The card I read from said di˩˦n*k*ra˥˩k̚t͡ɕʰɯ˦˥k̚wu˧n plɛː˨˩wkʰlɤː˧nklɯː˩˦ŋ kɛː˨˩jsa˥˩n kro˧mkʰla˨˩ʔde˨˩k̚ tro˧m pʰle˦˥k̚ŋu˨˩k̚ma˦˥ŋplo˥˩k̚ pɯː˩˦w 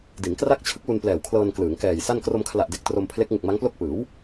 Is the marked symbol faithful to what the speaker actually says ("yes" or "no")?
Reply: yes